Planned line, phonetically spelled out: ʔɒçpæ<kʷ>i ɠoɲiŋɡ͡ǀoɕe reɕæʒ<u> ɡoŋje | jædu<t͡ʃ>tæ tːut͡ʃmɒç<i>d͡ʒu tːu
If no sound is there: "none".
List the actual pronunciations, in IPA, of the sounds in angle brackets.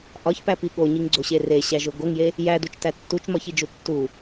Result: p, o, t͡ʃ, i

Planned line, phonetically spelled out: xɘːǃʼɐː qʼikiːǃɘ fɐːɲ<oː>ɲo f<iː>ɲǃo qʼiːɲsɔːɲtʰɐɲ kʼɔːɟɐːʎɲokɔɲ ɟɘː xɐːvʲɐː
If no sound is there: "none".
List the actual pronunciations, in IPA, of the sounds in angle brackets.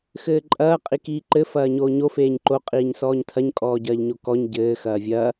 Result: oː, eː

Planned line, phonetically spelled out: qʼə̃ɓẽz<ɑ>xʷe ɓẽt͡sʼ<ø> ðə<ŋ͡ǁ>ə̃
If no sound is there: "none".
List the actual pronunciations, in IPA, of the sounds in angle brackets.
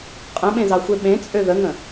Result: ɑ, ø, ŋ

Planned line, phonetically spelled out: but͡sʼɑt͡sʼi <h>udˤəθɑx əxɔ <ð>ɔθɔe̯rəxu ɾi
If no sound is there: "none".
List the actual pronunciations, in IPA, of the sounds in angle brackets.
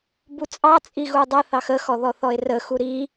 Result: ɣ, ð

